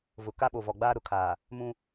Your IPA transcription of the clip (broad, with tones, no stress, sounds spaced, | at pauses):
v ʊ˨ k a˦ ɓ o˨ v ɔ˨ ɡ͡b aː˦ ɾ ʊ˨ kʰ aː˨ | m ũ˦